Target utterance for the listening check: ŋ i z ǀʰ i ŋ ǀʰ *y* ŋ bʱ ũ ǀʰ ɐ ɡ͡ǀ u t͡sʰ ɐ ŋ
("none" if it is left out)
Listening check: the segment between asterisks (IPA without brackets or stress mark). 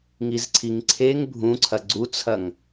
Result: e